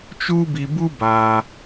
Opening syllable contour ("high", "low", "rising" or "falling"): high